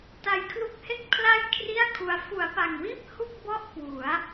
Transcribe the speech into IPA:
ta˧jkʰlu˦˥k̚he˥˩k̚ pʰla˥˩j kʰri˥˩a̯kʰu˧a̯ fu˩˦a̯pa˨˩ŋwiː˥˩p̚ hu˥˩k̚bɔ˥˩ʔ kwu˩˦a̯

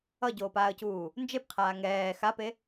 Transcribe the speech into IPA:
ʌɟoːpaːə̯cuː | nd͡ʒepqʰaː ŋɛː xape

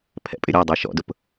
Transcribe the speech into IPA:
pʰɛ̰pʼɪɾʲɔdˤe ʃɔ̰dʊp

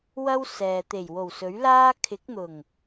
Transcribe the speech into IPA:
wɐ˥wsɛː˨ t̪e˨˩jwo˨˩wsɵ˨˥ɥ laː˥ kʰɪ˨˥k̚n̪ʊ˨˩ŋ

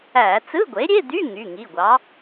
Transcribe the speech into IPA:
æ˧˩˧ t͡sɯ˧˥˧ɡʷe˩˥ɾʲe˧˥˧d̪y˧˥˧ ŋy˩˧˩ŋi˩˧˩ɡʷɑ˩˥

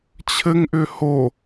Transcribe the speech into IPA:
t͡ɕʰɘŋʔʏ ho

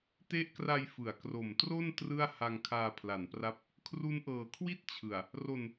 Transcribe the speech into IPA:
te˦˥ʔkra˧j fɯ˩˦a̯kro˨˩mtro˥˩n trɯ˥˩a̯ ha˧ŋkʰaː˧pʰla˩˦npra˦˥p̚ | kʰru˦˥nʔɤː˨˩kʰwi˥˩t̚ t͡ɕʰɯ˨˩a̯ | ro˧n

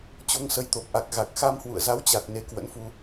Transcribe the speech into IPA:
t͡ɕo˧ŋsə˧j t̪o˨˩p̚ʔa˨˩k̚ ɣa˨˩k̚xa˧mhwṵ˧˨ə̯ za˨˦wt͡ɕa˨˩t̚ ne˧kwə̰˧˥nfu˧

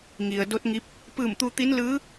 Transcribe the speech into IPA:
ŋi˩ə̯do˧˥t̚ŋi˧˥p̚ | pɯː˧˩mt̪u˧t̪i˧˥n lɯː˧˥

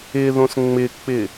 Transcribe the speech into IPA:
ɪðõs ŋ͡mɪk͡pɪ

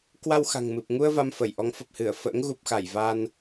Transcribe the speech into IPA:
kwa˧wxa̤˨˩ŋmɨ˨˩p̚ŋu˧ə̯ va˧mfə˧˩jʔɔ˨˦ŋ fə˨˩p̚hɨ˧˩ə̯fə̰ː˧˥ŋ ɣu˨˩p̚xa˧˩j va˧n

